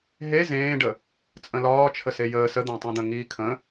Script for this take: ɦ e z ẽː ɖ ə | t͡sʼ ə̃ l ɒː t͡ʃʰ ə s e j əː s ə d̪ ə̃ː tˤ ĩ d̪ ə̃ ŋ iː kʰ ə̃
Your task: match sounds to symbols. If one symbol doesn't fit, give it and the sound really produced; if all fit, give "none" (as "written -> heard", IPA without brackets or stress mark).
none